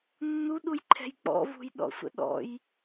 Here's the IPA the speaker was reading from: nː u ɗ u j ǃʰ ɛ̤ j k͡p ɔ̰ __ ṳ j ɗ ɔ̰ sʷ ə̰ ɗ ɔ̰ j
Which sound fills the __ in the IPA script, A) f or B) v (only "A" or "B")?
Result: B